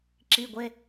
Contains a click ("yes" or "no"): yes